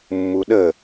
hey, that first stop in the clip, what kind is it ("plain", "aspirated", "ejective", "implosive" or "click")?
implosive